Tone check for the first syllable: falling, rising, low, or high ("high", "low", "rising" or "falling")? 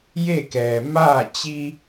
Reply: falling